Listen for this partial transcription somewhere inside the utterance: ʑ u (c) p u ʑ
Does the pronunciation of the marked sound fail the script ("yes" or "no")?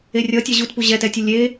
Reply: yes